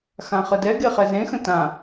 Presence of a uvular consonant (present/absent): present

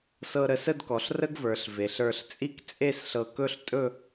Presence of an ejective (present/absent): present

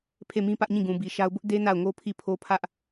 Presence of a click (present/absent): absent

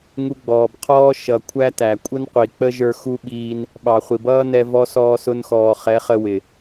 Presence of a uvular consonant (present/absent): present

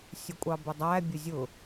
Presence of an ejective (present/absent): present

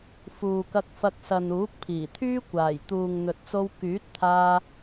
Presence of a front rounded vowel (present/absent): present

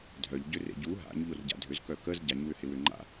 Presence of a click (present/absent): present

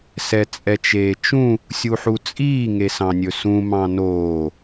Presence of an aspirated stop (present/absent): absent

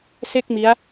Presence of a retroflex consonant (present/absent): absent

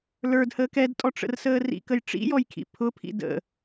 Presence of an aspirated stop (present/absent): present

